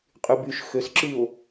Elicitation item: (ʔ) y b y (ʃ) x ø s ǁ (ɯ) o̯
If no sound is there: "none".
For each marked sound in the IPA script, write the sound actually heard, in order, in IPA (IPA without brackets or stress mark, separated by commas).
qʼ, ʃ, ɯ